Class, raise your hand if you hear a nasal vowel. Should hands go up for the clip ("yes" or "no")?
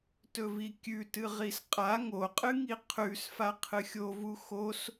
no